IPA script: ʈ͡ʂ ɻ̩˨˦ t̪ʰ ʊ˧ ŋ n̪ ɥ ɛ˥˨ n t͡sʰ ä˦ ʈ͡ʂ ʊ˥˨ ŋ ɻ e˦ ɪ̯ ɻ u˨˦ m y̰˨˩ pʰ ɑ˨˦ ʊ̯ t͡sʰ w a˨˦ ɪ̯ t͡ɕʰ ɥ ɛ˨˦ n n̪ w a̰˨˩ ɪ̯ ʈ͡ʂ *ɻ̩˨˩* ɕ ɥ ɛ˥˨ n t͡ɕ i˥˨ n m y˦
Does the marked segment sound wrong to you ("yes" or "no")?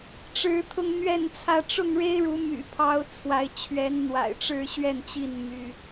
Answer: yes